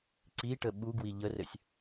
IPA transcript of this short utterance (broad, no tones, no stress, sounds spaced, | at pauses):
ǀ i ʈ ə ɓ u ɡ w i ʎ ə r ɘ sʲ